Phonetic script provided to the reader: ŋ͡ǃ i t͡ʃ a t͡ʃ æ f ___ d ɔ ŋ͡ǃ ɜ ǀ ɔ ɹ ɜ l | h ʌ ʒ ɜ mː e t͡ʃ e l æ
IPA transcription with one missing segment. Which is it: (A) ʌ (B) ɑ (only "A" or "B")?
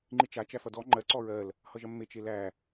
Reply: A